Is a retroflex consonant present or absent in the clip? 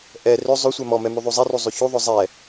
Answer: absent